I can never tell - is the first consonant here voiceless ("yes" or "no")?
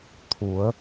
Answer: yes